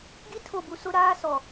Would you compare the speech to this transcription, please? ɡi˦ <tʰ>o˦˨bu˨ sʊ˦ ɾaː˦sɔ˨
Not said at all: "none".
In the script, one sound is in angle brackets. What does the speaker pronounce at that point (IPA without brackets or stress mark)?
tʰ